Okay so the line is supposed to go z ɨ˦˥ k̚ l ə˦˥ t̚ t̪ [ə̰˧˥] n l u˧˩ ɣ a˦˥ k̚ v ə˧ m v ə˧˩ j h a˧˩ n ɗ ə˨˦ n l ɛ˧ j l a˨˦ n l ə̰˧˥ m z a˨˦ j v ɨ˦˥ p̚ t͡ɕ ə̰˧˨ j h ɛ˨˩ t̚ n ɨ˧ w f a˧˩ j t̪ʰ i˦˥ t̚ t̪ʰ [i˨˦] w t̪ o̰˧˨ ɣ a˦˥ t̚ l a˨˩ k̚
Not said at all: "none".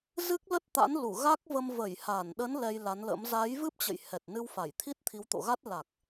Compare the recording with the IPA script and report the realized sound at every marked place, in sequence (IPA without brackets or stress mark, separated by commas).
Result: a̰˧˥, i˨˦